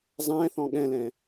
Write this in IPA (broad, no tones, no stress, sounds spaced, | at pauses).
zˤ ɛ̃ θ ɔ̃ ɠ ɛ̃ l ɛ̃